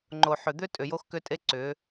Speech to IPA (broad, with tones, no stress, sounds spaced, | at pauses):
ŋ͡ǃ o˨ ħ ʏ˨ d̪ ʏ˦ tʼ ʏ˨ j o˦ x k ʏ˦ tʼ e˦ ǀ ʏ˨˦